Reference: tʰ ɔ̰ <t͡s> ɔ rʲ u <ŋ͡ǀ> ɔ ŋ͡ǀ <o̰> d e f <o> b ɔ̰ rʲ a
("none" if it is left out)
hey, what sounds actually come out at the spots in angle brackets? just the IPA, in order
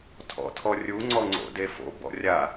tʰ, ŋ͡ǀ, o̰, o̰

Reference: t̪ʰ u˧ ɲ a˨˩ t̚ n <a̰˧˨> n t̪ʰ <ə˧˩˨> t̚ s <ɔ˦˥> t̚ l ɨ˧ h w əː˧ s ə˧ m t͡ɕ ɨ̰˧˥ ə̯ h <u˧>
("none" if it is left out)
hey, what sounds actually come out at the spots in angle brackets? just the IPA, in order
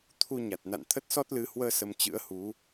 a̰˧˨, ə˦˥, ɔ˦˥, u˨˦

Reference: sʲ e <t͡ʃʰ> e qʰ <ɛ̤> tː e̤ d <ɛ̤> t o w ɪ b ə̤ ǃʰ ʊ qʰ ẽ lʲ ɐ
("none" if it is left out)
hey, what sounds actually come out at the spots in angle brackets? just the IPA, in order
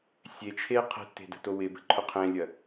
t͡ʃʰ, ɛ̤, ə̤

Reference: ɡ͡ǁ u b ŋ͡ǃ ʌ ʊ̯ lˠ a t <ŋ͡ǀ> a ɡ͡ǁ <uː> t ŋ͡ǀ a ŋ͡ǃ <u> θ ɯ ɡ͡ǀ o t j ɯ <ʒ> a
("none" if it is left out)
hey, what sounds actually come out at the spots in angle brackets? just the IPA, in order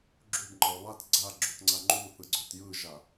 ɡ͡ǀ, u, u, ʒ

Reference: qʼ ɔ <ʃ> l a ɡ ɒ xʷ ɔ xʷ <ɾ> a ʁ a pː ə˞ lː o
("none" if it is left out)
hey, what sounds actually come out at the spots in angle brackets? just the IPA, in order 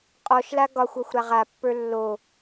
ʃ, ɾ

